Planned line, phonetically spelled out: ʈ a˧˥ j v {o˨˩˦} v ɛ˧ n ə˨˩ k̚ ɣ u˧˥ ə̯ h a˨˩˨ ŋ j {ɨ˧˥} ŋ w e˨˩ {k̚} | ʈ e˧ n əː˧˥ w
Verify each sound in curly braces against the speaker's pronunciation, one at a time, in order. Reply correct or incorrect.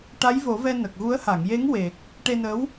correct, incorrect, correct

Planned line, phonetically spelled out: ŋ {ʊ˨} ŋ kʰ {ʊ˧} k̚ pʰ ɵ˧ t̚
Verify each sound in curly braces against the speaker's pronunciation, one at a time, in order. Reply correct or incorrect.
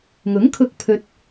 incorrect, correct

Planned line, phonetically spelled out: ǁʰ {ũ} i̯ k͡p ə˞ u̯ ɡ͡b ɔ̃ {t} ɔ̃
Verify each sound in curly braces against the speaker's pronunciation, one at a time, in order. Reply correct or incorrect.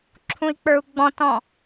correct, correct

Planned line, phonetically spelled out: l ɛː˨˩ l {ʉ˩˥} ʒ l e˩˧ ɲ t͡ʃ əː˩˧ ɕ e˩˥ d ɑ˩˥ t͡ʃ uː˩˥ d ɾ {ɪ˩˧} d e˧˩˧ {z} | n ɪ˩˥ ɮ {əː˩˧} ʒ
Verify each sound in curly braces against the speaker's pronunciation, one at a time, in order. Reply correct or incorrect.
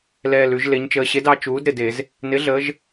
incorrect, incorrect, correct, correct

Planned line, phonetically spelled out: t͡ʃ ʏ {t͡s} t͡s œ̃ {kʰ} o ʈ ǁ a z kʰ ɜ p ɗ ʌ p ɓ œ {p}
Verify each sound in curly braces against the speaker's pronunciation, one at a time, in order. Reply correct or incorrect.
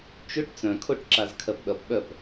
incorrect, correct, correct

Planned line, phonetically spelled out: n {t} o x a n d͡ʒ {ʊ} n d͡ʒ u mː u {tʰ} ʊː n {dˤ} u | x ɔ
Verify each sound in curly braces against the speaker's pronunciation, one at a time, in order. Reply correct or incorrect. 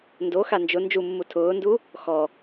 incorrect, correct, correct, incorrect

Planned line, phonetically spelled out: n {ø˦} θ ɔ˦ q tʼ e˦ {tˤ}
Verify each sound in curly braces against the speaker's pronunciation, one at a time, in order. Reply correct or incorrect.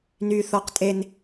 incorrect, incorrect

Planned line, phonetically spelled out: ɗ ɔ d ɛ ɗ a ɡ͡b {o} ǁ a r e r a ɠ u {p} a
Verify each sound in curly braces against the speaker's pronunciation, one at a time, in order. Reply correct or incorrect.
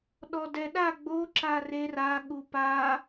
correct, correct

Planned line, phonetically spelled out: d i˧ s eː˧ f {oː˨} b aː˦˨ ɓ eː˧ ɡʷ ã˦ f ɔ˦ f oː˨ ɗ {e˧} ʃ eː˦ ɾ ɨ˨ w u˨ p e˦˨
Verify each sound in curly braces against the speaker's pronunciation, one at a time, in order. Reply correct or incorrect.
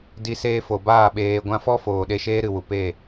incorrect, correct

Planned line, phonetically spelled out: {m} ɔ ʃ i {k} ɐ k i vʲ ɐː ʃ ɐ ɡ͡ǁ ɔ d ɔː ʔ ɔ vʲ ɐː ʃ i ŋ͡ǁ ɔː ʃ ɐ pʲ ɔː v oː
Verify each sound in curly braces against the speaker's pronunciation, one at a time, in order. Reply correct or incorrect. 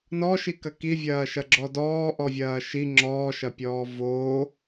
incorrect, correct

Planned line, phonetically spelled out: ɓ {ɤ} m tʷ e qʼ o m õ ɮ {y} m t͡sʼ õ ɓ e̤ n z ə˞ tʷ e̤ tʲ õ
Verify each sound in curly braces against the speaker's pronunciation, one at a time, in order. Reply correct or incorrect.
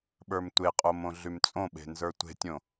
incorrect, correct

